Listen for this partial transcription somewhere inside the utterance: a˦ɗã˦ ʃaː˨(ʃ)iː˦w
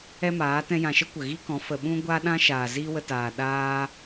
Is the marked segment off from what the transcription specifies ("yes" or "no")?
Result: yes